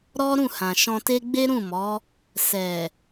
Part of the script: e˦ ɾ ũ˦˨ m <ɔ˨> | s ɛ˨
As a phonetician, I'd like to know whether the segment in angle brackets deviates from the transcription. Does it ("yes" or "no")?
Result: yes